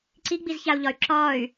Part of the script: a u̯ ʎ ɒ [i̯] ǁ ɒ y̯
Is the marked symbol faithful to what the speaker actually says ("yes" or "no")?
no